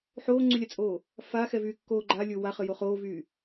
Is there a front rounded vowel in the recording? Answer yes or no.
yes